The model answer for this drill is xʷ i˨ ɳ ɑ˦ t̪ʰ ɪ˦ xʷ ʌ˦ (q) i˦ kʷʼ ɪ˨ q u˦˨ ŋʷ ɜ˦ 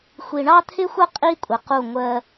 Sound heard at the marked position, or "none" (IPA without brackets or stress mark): qʼ